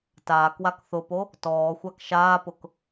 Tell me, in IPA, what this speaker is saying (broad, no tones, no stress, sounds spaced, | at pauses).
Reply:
t aː k w a k θ ʊ p o | t ɔː xʷ a k ʃ aː p ʊ k